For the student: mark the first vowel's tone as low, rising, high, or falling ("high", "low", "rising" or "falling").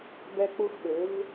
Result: high